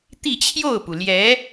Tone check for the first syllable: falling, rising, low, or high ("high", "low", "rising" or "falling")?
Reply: falling